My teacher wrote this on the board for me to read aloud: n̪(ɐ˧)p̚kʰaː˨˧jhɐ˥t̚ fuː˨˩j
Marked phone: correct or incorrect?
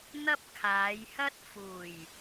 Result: incorrect